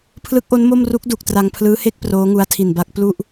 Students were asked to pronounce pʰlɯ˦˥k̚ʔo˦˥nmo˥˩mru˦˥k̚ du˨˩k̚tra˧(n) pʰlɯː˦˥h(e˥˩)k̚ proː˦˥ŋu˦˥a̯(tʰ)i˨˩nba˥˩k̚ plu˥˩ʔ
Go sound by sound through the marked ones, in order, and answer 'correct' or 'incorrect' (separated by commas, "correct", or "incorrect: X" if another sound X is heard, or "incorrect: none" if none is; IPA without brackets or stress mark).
incorrect: ŋ, correct, correct